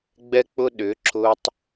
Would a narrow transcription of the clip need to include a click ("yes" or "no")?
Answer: yes